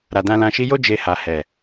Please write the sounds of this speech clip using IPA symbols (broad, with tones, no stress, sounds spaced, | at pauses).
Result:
ɾ a˨ d ã˧ l ã˧ ʃ i˧ j o˦ d͡ʒ e˧ h a˨ h ɛ˨